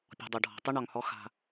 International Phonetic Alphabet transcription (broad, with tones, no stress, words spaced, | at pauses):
pʲɔ̤˨dˤʊ˨ɖʱɔ̤˨tˤə˦ ɳɒ˨ŋhɔ˦ xa̤˦